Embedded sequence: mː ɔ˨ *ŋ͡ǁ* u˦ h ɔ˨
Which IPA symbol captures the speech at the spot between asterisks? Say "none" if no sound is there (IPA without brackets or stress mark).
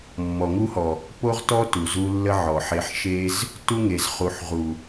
ŋ